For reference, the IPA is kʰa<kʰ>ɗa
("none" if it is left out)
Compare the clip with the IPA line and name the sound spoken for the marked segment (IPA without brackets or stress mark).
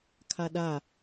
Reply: none